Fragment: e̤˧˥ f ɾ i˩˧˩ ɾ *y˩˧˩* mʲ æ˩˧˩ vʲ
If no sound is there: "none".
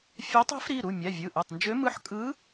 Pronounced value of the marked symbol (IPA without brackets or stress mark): u˩˧˩